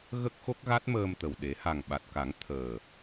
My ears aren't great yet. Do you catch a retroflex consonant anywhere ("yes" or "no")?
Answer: no